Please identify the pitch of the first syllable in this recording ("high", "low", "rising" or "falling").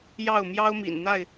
falling